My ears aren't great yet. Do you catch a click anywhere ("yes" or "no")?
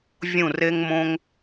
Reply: no